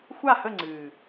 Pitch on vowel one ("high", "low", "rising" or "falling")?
falling